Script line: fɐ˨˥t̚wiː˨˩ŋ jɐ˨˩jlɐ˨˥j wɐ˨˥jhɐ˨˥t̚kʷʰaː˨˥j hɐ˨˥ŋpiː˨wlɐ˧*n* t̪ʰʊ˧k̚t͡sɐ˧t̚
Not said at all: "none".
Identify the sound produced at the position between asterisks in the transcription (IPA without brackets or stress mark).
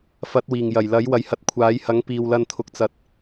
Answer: n